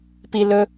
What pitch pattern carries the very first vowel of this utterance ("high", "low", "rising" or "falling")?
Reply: high